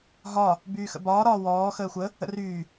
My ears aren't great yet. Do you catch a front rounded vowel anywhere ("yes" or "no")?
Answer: yes